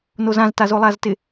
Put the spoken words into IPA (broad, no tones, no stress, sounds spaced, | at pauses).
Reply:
n o z ã z t a z o lˠ a z t ɪ